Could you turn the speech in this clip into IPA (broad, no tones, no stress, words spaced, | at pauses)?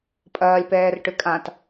pʼɐːlʲpɛːrʈʏ kʼãt